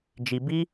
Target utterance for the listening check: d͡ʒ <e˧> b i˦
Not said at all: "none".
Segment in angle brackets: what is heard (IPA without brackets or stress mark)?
i˧